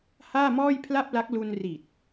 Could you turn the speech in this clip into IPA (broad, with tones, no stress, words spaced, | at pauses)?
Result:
haː˥˩mɔː˥˩jpʰla˥˩p̚la˦˥k̚ lu˧n ri˨˩t̚